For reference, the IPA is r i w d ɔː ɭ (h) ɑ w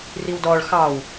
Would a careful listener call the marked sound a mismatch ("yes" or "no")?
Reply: yes